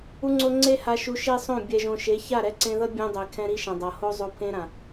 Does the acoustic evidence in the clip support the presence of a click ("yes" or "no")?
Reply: yes